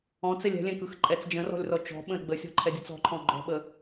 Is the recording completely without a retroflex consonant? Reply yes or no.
yes